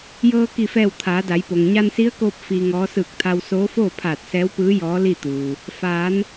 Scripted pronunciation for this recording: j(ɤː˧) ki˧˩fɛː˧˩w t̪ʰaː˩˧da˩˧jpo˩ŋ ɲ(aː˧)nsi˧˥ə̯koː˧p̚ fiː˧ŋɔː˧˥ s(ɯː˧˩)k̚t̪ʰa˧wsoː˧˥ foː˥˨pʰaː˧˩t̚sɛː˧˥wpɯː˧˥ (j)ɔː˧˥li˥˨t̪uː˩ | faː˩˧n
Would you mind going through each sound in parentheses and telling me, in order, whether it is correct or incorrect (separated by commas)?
correct, incorrect, correct, correct